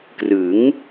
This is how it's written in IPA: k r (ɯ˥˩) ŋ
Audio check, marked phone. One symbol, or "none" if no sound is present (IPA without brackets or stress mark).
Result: ɯ˩˦